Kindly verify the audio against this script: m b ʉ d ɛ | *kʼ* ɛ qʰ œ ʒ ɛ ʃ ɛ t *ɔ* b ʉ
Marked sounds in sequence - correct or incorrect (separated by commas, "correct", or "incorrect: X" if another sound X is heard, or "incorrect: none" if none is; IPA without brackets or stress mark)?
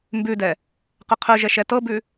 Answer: incorrect: q, incorrect: ɤ